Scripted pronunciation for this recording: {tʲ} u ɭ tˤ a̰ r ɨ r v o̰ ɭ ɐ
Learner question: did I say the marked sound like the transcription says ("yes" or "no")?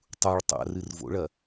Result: no